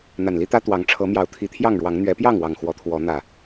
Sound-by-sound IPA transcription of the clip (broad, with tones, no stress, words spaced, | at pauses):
n̪a˨˩nli˦t̪ä˦ t̪wɑ˨˦ŋ ʈ͡ʂʰɤ˨˦mjɑ˨˦ʊ̯ t̪ʰi˨˦t̪ʰjɑ˥˨ŋɻwɑ˨˦ŋ n̪ɥɛ˨˦pjɑ˥˨ŋwɑ˨˩ŋ xwɔ˨˦t̪ʰwɔ˨˦ n̪ä˨˩